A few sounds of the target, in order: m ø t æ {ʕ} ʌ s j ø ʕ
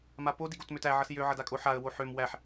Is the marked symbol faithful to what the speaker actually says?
yes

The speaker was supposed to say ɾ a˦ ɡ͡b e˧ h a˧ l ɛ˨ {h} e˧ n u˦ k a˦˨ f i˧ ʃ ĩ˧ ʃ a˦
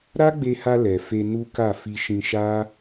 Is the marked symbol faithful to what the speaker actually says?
no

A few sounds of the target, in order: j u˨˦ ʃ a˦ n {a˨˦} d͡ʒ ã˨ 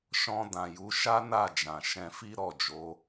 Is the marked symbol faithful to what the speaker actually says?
no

